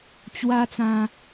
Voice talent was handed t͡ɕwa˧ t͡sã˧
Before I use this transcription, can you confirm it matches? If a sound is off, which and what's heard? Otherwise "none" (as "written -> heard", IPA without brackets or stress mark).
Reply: none